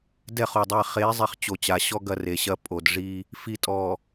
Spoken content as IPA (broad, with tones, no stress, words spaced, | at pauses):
dɛ˦˨χo˨dˤɛ˦˨ χe˨˦zˤi˨χ t͡ɕo˨t͡ɕa˨˦ɕɔ˦ ɡɐ˦re˨ɕɐ˦ pʼo˨dʐi˦ | fi˨tʼɔ˨